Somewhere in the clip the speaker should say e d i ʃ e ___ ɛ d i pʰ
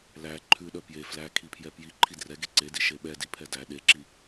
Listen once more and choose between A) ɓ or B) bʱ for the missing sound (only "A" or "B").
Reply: A